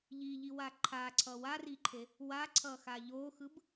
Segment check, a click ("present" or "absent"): present